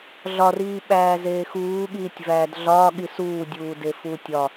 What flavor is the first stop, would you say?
implosive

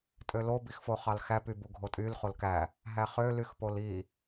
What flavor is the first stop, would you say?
ejective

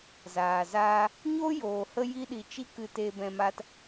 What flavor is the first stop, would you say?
implosive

